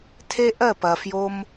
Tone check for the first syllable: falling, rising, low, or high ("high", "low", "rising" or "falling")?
high